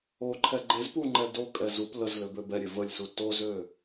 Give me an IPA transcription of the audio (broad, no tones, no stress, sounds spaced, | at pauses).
o ǃʰ ɛ ɡ͡ǃ e z p u ŋ͡ǃ ɛ d o kʼ ɛ z u p l ə z l ø b ø b ɛ ɾʲ e v ə lʲ s u t o z ø